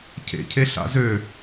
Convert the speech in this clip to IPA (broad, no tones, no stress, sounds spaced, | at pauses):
cʰ ḛ cʰ e ɬ a̰ z ø